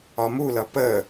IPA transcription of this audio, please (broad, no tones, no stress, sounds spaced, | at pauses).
ɒ m u l ʌ p ə